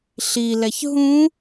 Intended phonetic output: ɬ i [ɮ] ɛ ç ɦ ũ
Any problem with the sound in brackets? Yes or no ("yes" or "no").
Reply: yes